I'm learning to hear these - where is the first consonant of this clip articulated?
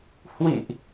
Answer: throat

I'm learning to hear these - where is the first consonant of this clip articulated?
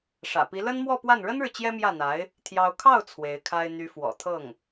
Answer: retroflex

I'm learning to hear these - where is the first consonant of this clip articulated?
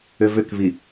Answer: lips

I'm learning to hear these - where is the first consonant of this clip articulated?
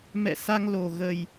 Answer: lips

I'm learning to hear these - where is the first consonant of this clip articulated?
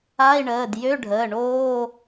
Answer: retroflex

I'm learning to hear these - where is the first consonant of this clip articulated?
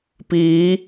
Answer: lips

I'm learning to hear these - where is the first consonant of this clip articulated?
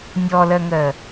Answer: tongue tip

